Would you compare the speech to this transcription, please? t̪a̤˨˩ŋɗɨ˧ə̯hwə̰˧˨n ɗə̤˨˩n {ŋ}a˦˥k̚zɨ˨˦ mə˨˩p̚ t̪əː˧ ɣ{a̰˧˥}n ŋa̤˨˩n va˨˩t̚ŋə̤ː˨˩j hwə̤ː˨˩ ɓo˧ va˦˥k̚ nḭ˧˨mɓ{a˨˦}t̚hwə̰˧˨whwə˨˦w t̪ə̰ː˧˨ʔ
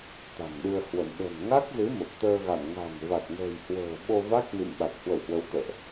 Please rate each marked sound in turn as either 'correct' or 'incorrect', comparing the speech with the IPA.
correct, incorrect, incorrect

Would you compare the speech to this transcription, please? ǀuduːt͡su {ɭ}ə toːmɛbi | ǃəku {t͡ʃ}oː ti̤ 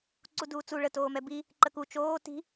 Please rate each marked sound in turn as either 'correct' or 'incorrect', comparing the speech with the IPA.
correct, correct

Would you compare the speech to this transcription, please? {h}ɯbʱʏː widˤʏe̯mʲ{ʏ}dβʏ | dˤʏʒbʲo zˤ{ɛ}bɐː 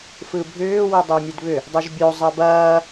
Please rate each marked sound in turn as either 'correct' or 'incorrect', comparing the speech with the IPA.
incorrect, incorrect, correct

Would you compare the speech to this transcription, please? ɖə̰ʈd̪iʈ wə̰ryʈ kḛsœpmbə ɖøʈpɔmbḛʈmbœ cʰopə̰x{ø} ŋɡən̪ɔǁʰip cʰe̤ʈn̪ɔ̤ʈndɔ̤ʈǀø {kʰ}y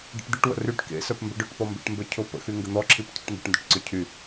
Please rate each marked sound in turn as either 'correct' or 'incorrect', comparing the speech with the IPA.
incorrect, incorrect

